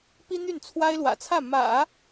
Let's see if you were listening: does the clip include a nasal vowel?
no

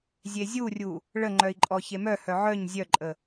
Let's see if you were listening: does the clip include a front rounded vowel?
yes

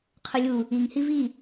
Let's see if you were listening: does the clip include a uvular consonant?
yes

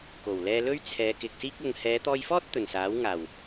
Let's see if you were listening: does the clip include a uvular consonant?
no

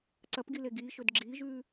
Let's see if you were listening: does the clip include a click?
yes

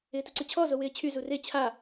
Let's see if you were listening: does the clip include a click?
yes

